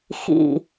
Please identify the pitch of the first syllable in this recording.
falling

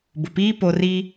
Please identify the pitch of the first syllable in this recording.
low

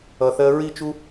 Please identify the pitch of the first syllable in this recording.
low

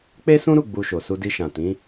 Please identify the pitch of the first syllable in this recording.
high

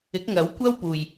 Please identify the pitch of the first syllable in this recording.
rising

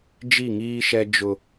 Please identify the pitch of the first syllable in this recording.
falling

